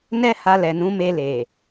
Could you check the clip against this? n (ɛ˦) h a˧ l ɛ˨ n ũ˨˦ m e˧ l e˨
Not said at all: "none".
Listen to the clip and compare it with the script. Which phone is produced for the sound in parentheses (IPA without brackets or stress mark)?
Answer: ɛ˦